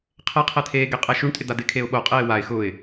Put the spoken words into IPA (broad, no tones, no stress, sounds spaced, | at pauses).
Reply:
qʰ ɛ qʰ ɛ t̪ʰ eː ɡ e qʼ ɛ ʃ u ɳ tʼ ɪ d̪ a d̪ ɪ kʰ e ʊ̯ ɓ o qʼ eː w a ɪ̯ x ʊ ɪ̯